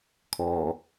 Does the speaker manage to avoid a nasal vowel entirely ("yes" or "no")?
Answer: yes